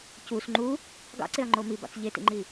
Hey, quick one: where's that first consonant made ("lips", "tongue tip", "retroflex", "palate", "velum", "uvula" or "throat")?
palate